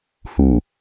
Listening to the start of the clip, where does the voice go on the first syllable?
low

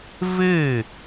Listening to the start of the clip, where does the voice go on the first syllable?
falling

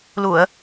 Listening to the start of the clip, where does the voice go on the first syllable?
low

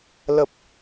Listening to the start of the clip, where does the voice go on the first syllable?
low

